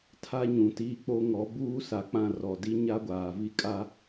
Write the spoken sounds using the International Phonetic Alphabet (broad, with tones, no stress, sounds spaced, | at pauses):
tʰ a˦ ɲ ũ˨ t iː˦ k͡p o˦ ŋ ɔ˨˦ b uː˦ s a˨ k͡p ã˦˨ r ɔ˨ d i˦ ɲ a˦ ɡʷ aː˨ v i˦ kʼ a˦